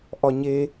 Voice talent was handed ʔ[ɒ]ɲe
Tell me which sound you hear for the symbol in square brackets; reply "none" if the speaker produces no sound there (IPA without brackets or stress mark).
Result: ɒ